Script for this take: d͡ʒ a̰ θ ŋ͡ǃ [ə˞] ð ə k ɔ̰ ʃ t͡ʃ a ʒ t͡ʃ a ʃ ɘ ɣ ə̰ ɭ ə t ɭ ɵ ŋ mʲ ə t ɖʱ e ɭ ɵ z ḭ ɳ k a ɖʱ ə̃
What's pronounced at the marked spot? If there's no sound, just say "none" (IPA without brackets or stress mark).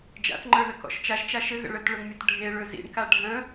ə˞